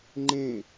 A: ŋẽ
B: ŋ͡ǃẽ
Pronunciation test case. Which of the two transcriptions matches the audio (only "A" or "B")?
B